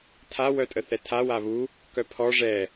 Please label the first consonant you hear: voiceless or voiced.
voiceless